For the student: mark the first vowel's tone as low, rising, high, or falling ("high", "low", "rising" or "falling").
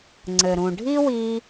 low